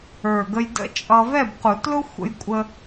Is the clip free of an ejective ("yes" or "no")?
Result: no